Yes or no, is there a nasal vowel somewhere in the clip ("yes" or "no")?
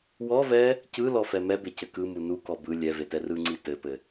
no